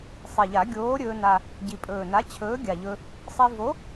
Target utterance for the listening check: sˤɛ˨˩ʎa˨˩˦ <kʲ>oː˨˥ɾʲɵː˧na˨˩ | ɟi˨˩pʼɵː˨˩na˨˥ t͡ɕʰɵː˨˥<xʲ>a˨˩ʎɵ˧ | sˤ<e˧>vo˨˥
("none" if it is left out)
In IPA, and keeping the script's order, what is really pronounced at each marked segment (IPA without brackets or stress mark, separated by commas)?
ɡʲ, ɡʲ, i˧